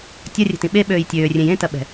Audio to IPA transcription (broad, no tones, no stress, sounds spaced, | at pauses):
tʲ ɐ rʲ ɛ̤ t ĩ ɓ e ɓ øː j tʲ øː rʲ ẽ j ẽ t ɐ ɓ ɛ̤